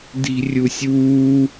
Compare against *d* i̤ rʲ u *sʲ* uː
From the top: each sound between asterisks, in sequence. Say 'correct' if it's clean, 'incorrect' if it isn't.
correct, correct

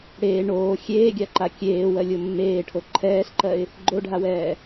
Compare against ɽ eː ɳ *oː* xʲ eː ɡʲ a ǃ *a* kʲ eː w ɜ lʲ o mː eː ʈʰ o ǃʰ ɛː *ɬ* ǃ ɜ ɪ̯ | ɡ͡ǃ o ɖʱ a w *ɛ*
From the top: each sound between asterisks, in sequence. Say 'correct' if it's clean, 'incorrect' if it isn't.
correct, correct, correct, incorrect: ɛː

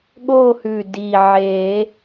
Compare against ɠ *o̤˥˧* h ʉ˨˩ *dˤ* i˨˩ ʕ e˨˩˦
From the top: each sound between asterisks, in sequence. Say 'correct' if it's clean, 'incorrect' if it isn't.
incorrect: o˥˧, incorrect: d

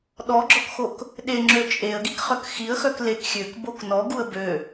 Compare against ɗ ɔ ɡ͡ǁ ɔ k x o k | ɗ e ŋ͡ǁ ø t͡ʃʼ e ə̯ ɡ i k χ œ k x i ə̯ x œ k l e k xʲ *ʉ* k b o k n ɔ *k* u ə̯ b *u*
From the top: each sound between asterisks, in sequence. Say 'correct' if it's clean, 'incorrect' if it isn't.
incorrect: ø, incorrect: ɡ, incorrect: ø

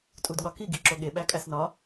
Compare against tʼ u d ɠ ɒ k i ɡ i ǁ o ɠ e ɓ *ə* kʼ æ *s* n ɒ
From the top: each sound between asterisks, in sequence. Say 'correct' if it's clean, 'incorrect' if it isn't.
incorrect: æ, correct

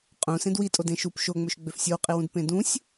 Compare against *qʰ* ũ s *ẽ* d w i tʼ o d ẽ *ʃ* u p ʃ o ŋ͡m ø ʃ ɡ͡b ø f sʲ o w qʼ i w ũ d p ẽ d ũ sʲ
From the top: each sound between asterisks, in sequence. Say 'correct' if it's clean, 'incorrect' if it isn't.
incorrect: qʼ, correct, correct

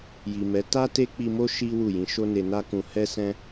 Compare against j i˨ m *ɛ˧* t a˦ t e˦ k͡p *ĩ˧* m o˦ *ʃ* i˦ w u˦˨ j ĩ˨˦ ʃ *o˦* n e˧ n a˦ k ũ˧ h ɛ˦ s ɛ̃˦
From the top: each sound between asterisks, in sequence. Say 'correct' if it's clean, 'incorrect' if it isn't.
incorrect: ɛ˨˦, incorrect: i˧, correct, correct

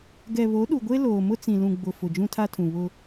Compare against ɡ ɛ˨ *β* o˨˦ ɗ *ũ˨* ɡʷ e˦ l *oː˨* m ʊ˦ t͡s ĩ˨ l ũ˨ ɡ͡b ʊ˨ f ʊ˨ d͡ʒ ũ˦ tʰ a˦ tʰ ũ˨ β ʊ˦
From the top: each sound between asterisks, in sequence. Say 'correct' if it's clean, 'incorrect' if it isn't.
correct, incorrect: u˨, correct

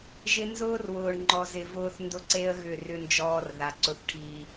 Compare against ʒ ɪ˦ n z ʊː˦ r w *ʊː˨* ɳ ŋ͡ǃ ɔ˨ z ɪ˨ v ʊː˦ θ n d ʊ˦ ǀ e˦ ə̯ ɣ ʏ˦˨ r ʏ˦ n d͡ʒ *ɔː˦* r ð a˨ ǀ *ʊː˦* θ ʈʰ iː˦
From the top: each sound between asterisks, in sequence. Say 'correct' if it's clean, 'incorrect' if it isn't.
correct, correct, incorrect: ʊ˦

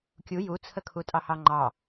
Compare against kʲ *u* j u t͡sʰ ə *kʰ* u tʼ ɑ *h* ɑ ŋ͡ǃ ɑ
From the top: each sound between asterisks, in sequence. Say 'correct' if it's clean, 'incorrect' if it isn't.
correct, correct, correct

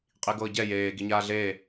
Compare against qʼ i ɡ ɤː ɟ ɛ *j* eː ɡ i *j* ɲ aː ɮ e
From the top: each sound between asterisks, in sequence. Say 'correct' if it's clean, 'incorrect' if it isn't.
correct, incorrect: none

